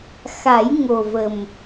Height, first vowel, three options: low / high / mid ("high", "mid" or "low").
low